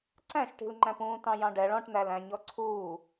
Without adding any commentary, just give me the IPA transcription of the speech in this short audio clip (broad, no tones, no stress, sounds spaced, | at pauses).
ǀ æ̃ ʃ ʈ i̤ l ŋ͡ǃ æ̃ p ũː t ɑ̃ j ɑ̃ ɖ ɛ ɭ ɔ̃ ʈ n̪ æ l æ̃ ɲ ɔ ǀʰ uː